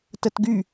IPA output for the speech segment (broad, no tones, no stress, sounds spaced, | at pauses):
t ə t ɡ y